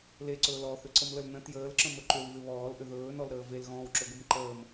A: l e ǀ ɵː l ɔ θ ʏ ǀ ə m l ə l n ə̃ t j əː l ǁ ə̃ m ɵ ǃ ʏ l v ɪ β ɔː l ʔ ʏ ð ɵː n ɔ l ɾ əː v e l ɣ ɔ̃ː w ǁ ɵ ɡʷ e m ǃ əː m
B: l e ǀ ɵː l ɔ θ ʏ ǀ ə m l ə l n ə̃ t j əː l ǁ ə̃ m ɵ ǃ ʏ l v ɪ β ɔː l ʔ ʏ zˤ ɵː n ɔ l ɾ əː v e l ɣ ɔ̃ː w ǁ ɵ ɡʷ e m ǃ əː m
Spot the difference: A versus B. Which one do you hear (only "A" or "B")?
A